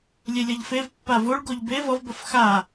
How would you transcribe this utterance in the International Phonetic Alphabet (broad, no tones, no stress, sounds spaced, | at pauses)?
lʲ e lʲ ʌ ʎ f e v pː a v o ɭ ɡ o ʎ b e v ʌ v b ʌ f x a